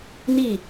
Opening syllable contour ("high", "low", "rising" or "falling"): falling